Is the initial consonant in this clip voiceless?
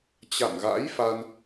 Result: yes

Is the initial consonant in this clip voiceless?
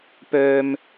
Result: yes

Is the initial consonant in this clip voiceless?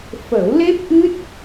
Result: yes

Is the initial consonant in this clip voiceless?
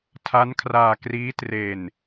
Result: yes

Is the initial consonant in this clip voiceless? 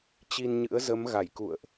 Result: yes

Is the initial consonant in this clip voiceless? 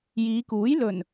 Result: no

